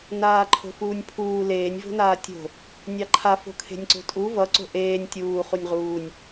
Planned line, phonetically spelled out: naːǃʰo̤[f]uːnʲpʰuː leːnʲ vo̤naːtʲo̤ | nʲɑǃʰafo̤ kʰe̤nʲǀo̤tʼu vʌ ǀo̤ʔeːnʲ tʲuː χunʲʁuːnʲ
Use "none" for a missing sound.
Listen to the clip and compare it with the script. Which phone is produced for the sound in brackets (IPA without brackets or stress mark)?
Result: f